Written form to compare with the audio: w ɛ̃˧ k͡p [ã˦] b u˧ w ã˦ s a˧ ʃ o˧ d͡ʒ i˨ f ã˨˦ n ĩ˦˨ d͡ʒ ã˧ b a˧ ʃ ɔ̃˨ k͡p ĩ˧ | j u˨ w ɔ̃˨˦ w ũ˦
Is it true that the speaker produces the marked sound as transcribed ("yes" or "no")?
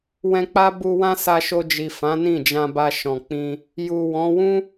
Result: no